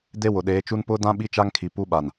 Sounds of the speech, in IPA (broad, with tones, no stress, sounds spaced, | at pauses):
d e˦ w ʊ˨ ɗ eː˨˦ t͡ʃ u˦ n p ʊ˦ d ã˦ ɓ i˦ t͡ʃ a˦ ŋ kʰ i˨ p u˦ ɓ a˨ n